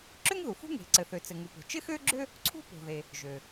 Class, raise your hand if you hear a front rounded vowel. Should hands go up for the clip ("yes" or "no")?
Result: yes